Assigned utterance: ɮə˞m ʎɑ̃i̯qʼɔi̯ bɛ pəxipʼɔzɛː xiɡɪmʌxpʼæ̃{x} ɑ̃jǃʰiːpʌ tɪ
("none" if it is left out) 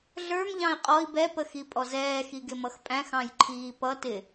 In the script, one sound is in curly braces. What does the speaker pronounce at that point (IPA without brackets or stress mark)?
x